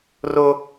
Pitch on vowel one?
high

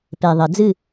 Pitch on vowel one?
low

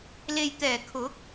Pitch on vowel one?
low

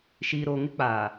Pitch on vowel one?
low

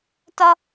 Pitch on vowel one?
high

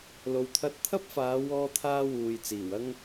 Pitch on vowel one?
low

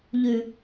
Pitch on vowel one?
low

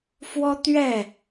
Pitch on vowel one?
high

